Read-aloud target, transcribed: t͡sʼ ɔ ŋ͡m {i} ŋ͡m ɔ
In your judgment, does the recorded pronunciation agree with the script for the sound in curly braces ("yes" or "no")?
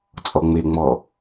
no